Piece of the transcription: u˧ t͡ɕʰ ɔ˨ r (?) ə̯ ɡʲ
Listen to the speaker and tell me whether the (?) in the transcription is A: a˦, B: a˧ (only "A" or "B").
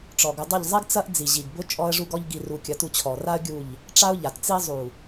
A